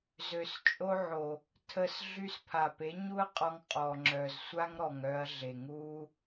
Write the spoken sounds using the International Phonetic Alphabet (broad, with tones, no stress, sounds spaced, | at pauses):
z ø˨ s t͡ʃʼ o˦ ʕ o˨ | tʰ ə˧ s ɮ y˧ s pʰ a˨ p e˨˦ ɲ u˦ ɐ̯ qʼ ɔ˧ ŋ qʼ ɔ˨ ŋ͡ǁ œ˨ z sʷ a˦ ŋ ɾ ɔ˨ ŋ œ˧ ɐ̯ ɮ e˨ ŋ u˦